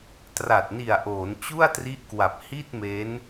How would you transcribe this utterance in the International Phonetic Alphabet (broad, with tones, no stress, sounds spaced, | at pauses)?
t r a˨˩ t̚ n i˨˩ a̯ ʔ oː˩˦ n t͡ɕ u˥˩ a̯ t r i˦˥ ʔ k w a˨˩ p̚ h i˥˩ t̚ m e˦˥ n